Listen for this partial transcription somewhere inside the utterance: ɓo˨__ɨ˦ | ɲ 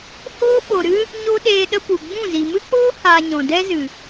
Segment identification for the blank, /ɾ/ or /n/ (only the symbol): ɾ